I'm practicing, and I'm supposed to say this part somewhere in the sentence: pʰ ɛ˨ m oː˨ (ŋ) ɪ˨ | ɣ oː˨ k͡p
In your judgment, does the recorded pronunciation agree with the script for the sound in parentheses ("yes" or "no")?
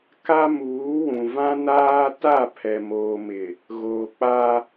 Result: no